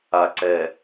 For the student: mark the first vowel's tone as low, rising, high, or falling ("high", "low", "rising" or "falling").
low